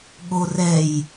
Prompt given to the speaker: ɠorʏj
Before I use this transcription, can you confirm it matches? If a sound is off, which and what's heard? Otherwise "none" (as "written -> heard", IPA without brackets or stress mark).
ʏ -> ɛ